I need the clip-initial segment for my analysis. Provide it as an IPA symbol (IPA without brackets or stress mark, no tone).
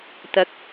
t̪